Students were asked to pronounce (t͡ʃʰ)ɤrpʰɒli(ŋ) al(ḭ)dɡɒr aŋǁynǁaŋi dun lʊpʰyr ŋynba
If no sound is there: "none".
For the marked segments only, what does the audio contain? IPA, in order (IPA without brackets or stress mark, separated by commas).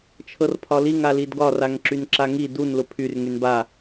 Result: t͡ʃʰ, ŋ, i